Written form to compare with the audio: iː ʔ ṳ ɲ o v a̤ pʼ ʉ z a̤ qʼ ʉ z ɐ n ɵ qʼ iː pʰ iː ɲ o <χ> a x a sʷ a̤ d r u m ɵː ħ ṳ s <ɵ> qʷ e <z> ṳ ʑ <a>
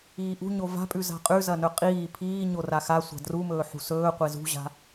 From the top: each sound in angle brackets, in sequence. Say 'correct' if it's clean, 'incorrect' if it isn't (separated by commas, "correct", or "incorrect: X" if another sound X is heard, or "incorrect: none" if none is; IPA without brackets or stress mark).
incorrect: r, incorrect: ɵː, correct, incorrect: a̤